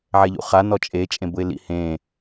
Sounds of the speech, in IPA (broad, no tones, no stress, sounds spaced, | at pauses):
ʕ ɛ ʎ ṵ χ a n ɔ t͡ʃʼ e t͡ʃʼ ẽ b ʊ ɪ̯ l ḭ h ẽ